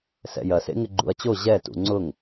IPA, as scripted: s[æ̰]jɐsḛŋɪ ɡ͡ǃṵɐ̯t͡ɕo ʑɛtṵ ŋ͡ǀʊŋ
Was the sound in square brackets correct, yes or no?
no